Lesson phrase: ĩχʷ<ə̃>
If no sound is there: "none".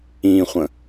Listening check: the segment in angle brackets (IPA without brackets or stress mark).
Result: ə̃